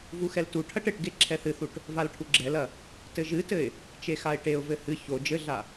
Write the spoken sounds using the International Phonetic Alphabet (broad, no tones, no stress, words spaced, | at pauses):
vuxɛltuʈʰɐʈ ɘʈɡe ǁʰɛθɨθuʈ | valʈʰuɡ͡ǁɛlɐ | tɘʒɨtɘɪ̯ | t͡ʃexaɪ̯ʈeʊ̯vɘ hɨ ço d͡ʒɘɮa